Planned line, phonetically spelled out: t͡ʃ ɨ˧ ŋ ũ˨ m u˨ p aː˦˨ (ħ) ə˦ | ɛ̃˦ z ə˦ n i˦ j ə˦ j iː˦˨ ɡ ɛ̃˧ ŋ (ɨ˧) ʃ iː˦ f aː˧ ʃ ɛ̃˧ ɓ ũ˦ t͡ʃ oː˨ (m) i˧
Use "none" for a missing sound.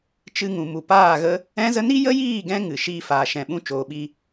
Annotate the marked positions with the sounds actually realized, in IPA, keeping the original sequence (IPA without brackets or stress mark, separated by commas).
ɣ, ɨ˨, ɓ